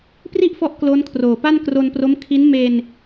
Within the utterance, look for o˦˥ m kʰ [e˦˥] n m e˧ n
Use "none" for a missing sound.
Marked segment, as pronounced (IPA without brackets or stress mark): i˦˥